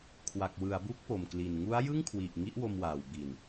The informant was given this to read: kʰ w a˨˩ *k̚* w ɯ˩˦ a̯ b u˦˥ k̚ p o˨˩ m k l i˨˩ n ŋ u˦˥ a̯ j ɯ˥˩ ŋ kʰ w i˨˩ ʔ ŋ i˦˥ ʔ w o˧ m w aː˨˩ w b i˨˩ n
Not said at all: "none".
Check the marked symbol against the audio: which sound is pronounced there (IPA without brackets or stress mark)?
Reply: k̚